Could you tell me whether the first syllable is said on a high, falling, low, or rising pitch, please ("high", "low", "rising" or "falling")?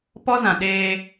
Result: high